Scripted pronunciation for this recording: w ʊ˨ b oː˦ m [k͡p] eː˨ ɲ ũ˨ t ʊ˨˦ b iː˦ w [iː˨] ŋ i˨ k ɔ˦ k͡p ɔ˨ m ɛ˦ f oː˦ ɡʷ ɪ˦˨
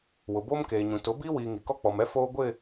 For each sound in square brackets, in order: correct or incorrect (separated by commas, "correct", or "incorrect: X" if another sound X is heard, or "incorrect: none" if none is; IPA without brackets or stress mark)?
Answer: incorrect: k, correct